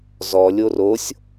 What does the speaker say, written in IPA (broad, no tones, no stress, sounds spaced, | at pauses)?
z ɔ lʲ o r o sʲ